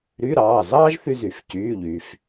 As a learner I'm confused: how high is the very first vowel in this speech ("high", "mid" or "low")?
high